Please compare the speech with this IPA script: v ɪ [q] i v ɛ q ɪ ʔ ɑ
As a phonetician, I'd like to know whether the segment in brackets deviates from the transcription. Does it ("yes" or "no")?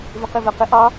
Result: no